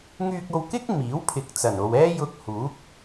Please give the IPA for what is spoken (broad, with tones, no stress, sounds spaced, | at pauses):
ŋ yː˧ k̚ o˧ w k ɪ˥ k̚ m iː˨˥ w pʰ ɪ˨ k̚ t͡s ɐ˨˩ n o˨ w ɛː˥ j ʊ˧ k̚ h uː˨˥ k̚